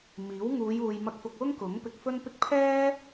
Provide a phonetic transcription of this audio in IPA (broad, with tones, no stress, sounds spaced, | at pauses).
m iː˨˥ w ŋ uː˨˧ j uː˨ j m ɐ˧ k̚ f ʊ˧ k̚ w ʊ˥ ŋ k ʊ˨˥ ŋ p ɪ˧ k̚ f ɵ˥ n p ɪ˥ k̚ pʰ ɛː˥